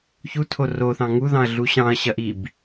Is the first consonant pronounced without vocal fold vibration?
yes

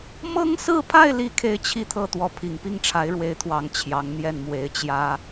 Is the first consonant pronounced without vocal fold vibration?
no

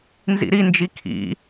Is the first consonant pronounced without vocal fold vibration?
no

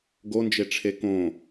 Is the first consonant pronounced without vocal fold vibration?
no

